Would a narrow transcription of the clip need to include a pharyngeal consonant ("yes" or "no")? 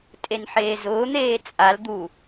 yes